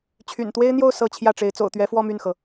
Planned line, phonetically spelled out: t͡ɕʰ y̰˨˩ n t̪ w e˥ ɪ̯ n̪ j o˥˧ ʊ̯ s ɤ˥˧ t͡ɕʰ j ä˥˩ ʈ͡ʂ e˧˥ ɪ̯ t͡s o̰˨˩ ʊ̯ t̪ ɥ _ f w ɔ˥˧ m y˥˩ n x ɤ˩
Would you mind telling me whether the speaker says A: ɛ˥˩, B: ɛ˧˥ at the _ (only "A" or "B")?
B